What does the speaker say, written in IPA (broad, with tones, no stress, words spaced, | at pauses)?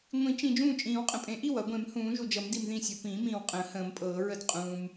ŋʷĩ˨˩˦t͡ʃĩ˨ d͡ʒũː˥˩t͡ʃʼĩː˨˩˦wqʼə̃˨pʼẽ˨˩˦ ʔi˥˩w ʌ˨˩˦ɡʷẽ˨˩˦mhũː˨˩˦ ʒu˨d͡ʒʌ˨˩˦m di˨mðĩ˥˩sʲʌ˨ pĩː˨˩˦mĩː˨wqʼə̃ː˨˩˦ hə̃ː˨˩˦mpʼɤː˨˩˦ɹə˥˩d qʼũː˨m